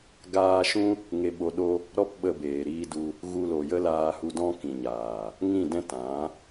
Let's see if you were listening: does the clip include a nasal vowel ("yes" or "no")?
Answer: yes